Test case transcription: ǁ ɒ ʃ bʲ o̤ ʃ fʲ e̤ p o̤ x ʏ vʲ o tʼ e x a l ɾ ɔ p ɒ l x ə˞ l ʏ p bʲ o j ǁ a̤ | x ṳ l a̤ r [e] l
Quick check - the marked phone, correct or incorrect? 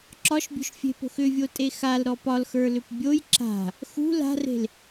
incorrect